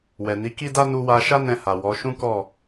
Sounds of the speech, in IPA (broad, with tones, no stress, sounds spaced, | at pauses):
w ɛ˨ n i˨˦ k i˦ d a˦ n u˧ w a˧ ʃ a˦ n ɛ̃˧ h a˨ w ɔ˨˦ ʃ ũ˦ k ɔ˦˨